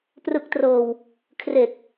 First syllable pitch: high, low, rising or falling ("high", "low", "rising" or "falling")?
low